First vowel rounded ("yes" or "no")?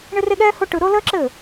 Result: no